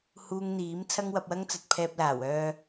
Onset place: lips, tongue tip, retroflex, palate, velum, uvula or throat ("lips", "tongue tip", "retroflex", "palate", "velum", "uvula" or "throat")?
throat